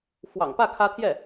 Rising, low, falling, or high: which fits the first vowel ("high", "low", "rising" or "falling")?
low